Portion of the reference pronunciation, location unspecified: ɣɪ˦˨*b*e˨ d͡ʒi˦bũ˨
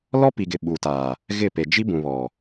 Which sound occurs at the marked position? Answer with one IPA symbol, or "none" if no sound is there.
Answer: p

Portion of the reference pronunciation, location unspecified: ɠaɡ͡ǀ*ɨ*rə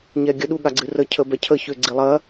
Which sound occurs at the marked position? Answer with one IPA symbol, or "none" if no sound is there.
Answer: ɨ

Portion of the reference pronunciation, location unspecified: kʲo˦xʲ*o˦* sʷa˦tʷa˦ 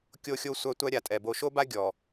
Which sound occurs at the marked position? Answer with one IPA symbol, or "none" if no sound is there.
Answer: o˦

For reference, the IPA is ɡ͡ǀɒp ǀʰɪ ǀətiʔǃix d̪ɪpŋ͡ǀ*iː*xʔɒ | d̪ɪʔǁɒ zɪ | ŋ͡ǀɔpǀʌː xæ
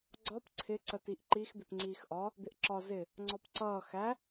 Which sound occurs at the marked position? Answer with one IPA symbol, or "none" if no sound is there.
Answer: iː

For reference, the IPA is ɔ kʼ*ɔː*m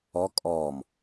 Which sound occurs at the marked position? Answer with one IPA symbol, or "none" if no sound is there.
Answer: ɔː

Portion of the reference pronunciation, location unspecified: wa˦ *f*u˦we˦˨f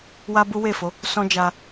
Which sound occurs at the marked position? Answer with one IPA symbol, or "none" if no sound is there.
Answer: b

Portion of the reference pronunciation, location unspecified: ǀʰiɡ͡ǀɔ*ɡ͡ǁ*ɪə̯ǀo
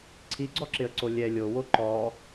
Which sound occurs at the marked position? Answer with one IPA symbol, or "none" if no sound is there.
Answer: ǁ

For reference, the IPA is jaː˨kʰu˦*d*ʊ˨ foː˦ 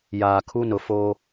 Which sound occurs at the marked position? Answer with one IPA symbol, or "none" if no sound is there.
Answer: n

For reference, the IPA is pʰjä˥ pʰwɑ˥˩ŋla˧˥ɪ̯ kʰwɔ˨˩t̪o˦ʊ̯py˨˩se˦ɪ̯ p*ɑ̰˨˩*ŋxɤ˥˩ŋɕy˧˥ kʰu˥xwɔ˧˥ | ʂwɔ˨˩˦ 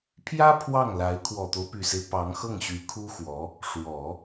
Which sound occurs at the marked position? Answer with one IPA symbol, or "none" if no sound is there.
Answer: ɑ˧˥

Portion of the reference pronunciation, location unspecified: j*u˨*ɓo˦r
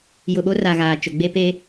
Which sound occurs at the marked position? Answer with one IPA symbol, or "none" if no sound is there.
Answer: ʊ˨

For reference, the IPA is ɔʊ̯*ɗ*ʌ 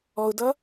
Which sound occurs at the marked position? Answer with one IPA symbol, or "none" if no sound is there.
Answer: d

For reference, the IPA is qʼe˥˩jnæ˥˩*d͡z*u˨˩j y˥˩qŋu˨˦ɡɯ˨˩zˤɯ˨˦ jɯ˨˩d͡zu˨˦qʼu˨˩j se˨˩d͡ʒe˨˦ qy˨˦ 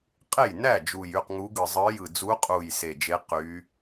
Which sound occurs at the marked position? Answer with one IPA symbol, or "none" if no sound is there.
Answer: d͡ʒ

